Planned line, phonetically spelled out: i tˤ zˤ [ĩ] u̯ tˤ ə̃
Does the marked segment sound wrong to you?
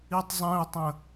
no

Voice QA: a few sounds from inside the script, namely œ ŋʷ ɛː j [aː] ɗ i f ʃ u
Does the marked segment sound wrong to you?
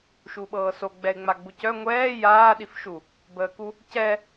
no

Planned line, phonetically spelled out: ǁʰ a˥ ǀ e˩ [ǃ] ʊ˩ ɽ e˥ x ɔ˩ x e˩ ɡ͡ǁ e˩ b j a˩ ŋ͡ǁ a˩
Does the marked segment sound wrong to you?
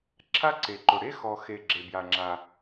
no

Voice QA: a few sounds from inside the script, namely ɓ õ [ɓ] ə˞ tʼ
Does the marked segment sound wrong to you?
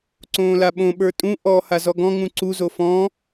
no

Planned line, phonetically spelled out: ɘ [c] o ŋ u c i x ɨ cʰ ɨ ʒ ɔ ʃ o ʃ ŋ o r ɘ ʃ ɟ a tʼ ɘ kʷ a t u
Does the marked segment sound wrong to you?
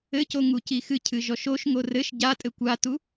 no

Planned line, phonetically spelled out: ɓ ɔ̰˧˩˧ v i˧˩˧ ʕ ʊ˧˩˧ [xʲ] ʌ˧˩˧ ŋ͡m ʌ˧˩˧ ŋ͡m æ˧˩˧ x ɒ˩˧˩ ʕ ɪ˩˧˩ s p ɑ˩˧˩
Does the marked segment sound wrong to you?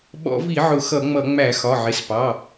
yes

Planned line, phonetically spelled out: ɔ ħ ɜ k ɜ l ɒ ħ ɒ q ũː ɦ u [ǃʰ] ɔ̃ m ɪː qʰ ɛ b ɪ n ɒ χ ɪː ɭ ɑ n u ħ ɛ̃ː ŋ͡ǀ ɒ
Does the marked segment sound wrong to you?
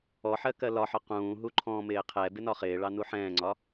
no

